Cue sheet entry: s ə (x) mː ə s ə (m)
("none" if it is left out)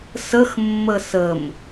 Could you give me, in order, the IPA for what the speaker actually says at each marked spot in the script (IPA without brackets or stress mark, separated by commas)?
x, m